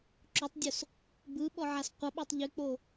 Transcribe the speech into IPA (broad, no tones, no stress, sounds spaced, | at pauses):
ǁ o tˤ dʲ o s | b ɯ ɓ ɔ ʕ a s qʷ ʌ ɓ o tˤ ʎ ʉ k͡p o